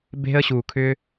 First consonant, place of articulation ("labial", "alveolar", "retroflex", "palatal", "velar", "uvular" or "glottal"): labial